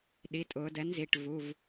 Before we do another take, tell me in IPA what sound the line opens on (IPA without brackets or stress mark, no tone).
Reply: ɗ